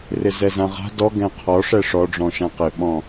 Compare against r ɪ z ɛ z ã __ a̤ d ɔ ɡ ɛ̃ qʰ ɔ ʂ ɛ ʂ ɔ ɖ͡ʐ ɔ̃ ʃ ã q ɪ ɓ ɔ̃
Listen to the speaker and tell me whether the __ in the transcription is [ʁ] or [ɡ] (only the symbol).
ʁ